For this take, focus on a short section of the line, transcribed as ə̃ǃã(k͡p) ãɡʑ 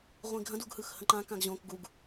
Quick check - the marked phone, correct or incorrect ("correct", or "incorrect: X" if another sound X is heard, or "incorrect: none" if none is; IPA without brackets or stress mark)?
incorrect: k